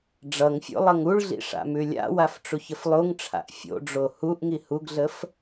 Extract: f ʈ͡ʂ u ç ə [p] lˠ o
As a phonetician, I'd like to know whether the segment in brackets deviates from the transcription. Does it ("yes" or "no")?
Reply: yes